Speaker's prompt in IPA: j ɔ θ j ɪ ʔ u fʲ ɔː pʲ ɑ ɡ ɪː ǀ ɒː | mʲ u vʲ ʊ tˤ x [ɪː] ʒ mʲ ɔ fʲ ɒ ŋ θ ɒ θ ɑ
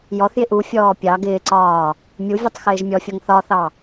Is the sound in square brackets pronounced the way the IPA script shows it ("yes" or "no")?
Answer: yes